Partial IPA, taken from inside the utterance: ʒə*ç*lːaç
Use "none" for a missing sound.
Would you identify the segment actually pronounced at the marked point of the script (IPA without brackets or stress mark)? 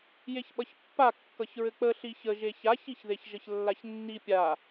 ç